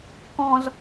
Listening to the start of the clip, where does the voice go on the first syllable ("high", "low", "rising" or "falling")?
low